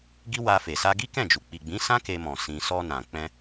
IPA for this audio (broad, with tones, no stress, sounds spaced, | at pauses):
ɡ i˦ w a˧ f e˨ s a˧ ɡ i˦ k ɛ̃˦˨ d͡ʒ u˨ k͡p i˨ ɡ͡b ĩ˨˦ s ã˦ k e˧ m ɔ̃˨ s ĩ˧ s ɔ˧ n ã˨ k͡p ɛ̃˧